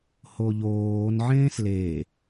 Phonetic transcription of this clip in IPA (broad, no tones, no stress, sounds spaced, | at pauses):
h o ʎ oː n ʕ ẽː s l e